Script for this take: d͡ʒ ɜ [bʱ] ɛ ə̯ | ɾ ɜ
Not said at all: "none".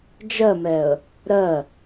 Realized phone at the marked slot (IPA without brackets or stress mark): m